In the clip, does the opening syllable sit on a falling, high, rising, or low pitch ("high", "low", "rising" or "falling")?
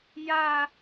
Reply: high